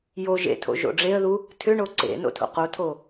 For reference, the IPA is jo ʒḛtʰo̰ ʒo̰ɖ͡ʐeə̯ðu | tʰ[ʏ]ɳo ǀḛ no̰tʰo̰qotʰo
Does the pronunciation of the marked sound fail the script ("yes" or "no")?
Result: no